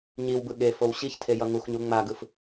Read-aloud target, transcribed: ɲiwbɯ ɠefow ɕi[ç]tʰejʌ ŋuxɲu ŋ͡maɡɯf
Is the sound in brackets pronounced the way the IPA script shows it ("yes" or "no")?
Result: yes